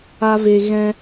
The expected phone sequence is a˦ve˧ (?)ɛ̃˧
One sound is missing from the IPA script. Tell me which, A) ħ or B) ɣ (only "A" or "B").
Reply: B